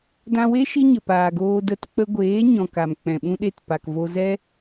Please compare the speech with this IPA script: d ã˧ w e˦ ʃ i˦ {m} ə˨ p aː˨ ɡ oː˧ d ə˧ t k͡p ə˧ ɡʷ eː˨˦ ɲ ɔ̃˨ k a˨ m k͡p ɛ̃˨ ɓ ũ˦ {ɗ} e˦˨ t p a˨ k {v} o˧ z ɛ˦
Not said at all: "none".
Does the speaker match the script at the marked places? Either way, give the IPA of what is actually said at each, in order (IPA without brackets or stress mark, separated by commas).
ɲ, ɗ, v